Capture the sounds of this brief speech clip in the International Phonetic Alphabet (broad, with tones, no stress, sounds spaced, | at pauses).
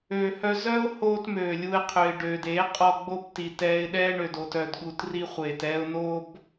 øː˧ h œ˦ z œ˦ ʊ̯ h oː˧ t m øː˨ lʲ u˧ ɪ̯ qʰ ø˨ ɪ̯ ɖ øː˨ d e˨˦ qʼ ɔ˧ ɡ͡b o˦ b t i˨ t ɛː˧ ɪ̯ ɗ ɛː˦ ɳ ø˨ d oː˧ t œ˧ d ɠ u˧ t r i˦ χʷ eː˨ t ɛː˦ ʊ̯ n o˦ b